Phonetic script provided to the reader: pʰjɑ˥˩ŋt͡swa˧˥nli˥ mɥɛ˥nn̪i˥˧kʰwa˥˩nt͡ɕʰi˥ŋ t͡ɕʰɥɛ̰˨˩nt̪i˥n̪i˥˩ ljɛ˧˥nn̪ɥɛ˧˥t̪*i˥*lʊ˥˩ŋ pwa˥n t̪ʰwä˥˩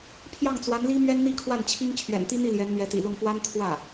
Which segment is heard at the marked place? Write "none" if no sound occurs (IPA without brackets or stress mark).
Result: ḭ˨˩